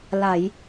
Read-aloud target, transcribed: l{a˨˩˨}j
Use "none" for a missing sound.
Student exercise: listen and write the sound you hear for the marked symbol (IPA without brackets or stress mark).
a˨˩˨